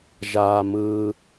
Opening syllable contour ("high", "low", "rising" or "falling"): low